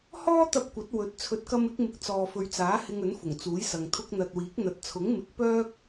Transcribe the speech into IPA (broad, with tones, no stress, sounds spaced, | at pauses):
h ɔː˥ t̪ ɐ˧ p̚ kʷ ɐ˨˥ t̚ w ɵ˨˥ t̚ t͡sʰ ɵ˨˥ t̚ k ɐ˧ m ɪ˨˥ k̚ m ɪ˨ k̚ t͡s ɔː˨ f ɵ˨ ɥ t͡s aː˨˥ h ɪ˧ ŋ ɵ˨˥ n f ʊ˨˩ ŋ t͡s uː˨˥ j s ɐ˨ ŋ t̪ʰ ʊ˧ k̚ n̪ ɐ˨ t̚ w iː˨˥ k̚ n̪ ɐ˨ t̚ t͡sʰ ʊ˨˥ ŋ m ɪ˨˥ k̚ p œː˥ k̚